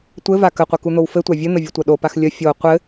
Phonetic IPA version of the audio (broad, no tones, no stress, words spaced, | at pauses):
tʷɘva kəqʷə kun̪owfɘtʷa vʲɘn̪ə vʲətʷɐɗopax lʲə fʲo qʷɘ